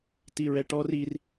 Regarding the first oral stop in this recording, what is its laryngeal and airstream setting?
plain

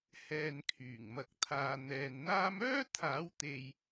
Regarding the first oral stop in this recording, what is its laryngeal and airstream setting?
aspirated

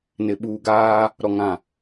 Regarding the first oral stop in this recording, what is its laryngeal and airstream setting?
implosive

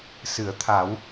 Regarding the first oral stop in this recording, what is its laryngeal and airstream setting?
aspirated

